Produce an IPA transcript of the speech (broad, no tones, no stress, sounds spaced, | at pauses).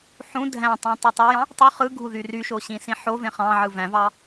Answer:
ħ ũ dʱ æ̃ tˤ ũ tˤ ɯ tˤ æ j ɑ̃ | tˤ ø χ ɯ ɡʱ u ð y r y ʃ o ɕ ĩ s ĩ ħ o v ẽ χ ɑ̃ ʕ ɯ v æ̃ v ɑ